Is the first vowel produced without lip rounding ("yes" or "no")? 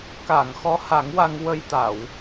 yes